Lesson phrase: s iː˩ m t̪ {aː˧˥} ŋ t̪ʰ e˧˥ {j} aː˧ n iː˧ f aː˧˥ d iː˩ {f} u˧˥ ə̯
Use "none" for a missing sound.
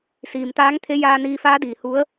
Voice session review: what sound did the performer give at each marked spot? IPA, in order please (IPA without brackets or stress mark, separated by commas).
aː˧˥, j, h